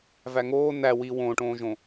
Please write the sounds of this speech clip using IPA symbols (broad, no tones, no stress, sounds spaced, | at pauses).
v æ ŋ oː n æ w i w õː ʈ õː ʒ õ